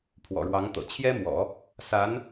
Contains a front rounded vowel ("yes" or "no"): no